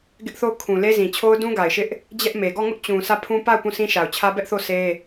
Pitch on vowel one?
high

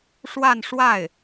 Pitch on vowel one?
falling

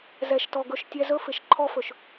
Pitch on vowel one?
low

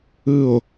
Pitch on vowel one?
falling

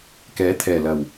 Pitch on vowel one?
rising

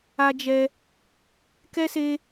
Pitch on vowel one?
high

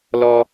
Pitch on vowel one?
low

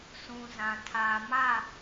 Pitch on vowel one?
low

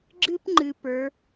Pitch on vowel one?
high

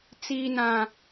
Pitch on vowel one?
low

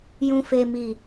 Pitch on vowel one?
low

